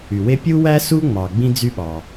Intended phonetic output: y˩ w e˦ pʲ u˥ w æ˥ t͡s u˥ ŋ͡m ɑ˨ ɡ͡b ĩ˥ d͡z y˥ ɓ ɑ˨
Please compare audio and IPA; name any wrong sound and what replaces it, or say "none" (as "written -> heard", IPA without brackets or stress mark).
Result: t͡s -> s